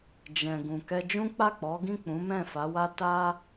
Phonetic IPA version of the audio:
d͡ʒ ɛ̃˨ ɡ ũ˨ k ɛ˧ d͡ʒ ũ˦ k͡p a˦˨ k͡p ɔ˨˦ ɡ ĩ˦˨ k͡p ũ˨˦ m ɛ̃˦˨ f a˨˦ w a˦ t a˦

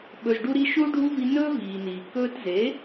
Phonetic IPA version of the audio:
ɓ ɵ˨ z ɖ u˧ ɾ i˧ ʃ u˦ ɖʱ u˦ v i˧ n ɵː˦ v iː˨ n iː˨ k ɵː˧ t z e˨˦

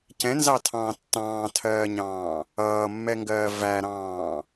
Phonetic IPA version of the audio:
c ɛ̃ n z ɑ tʰ ɑ̃ː tː ɑ̃ː tʰ ɜː ɲ ɑ̃ː | ʌː mː ɛ ŋ ɡ ɜː v æ ɾ ɑ̃ː

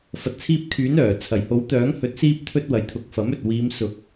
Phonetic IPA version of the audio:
f ɐ˨ t̚ t͡sʰ iː˧ p̚ kʰ yː˨˥ n œː˨˩ t͡sʰ ɐ˨˩ j h o˨˥ w t̪ œː˨˥ ŋ h ɵ˨˥ t̚ s iː˥ p̚ t̪ʰ ɵ˧ t̚ w ɐ˨ j t̪ʰ ʊ˨ k̚ f ɐ˨˥ m ɵ˨ t̚ w iː˨˧ m s ʊ˨˥ k̚

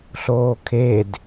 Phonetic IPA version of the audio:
ɬ oː kʰ e d

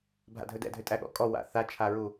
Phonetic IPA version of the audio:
bʱ a̰ dʱ ɵ d ɛ̰ dʱ ʏ tʼ æ ɠ ɔ̰ kʼ ɔ w a̰ θ a t͡ʃʰ a ɹ u

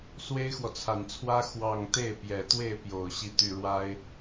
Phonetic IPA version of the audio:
s w e˥ ɪ̯ x w ɔ˨ t͡sʰ a˨˩ n t͡sʰ w ä˥ x w ɑ˥˧ ŋ t̪ e˥˩ ɪ̯ p j ɛ˨˩ t̪ w e˥˩ ɪ̯ p j o˨˩ ʊ̯ ɕ i˥˧ t̪ y˥˩ ɻ w a˥ ɪ̯

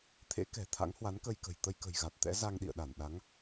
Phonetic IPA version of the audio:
t̪ʰ ḛ˧˥ k ɛ̤˨˩ t̪ʰ a̰˧˥ ŋ h w a˨˦ n k ə˧ j k ə̤˨˩ j t̪ ə˧ j k ə̤˨˩ j ɣ a˨˩ t̚ t̪ ɛ̰˧˥ z a˧ ŋ ɗ ḭ˧˨ ə̯ ɗ a˧˩ n ɗ a˨˦ ŋ

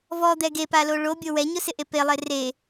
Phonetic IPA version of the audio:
v ɔ d̪ ɛ ɡ e p a l o ɭ o bʲ o w ɛ ɲ ʊ s ɪ ʔ e p e lˠ e r e

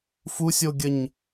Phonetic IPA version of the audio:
f u sʲ o ɡʲ ə ɲ

